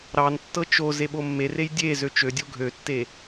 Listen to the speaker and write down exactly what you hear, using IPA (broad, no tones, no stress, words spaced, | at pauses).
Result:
ɾɑntːɤ t͡ʃo zeɓomːerej dʲe zøt͡ʃødʲo ɡʱøtːe